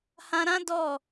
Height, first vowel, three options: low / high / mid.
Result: low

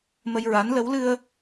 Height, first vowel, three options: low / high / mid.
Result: mid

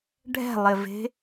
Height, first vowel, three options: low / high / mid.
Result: mid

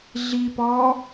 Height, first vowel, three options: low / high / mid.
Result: high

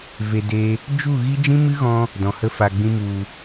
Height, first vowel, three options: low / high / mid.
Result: mid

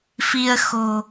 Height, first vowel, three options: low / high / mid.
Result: high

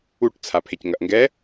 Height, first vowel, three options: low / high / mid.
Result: high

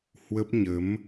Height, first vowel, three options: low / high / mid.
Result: mid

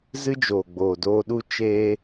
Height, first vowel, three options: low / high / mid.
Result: high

